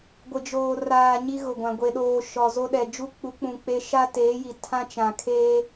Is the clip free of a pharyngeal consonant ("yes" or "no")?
yes